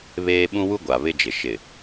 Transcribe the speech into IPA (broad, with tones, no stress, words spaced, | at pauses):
βeː˦ ɓũ˦wu˦ɡʷa˨ βɪ˦d͡ʒɪ˨ ʃɪ˨